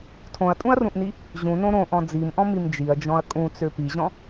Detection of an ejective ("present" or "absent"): present